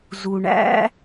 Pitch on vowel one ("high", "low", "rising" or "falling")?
low